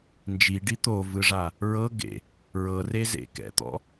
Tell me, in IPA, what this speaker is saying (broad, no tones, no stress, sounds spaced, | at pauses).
n d͡ʒ i ɖ i t̪ o v ɯ ʐ a | ɹ ɤ ɡ ḛ | ɹ ɤ r e z ḛ k ɛ̰ t̪ ɔ̰